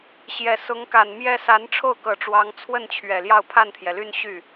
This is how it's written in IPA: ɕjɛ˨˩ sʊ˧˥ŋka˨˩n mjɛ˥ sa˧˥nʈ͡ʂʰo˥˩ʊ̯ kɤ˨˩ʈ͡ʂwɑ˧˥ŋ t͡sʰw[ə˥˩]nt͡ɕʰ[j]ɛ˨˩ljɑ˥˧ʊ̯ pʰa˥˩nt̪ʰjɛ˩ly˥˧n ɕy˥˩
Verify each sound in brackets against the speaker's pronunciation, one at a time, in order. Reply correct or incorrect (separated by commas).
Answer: correct, incorrect